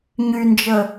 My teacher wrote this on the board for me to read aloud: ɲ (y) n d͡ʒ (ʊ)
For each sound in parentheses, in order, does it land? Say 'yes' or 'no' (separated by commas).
yes, no